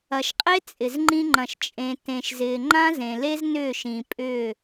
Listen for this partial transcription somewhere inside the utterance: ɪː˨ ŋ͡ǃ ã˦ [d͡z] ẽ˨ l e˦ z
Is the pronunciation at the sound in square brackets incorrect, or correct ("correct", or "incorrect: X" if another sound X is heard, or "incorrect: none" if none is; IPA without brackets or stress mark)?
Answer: incorrect: z